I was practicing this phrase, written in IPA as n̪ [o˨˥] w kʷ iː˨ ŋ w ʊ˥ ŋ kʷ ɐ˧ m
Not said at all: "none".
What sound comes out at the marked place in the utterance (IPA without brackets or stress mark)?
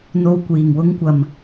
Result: o˧